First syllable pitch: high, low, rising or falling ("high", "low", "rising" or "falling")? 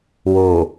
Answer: low